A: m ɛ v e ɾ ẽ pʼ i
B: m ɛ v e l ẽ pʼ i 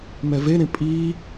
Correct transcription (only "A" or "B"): A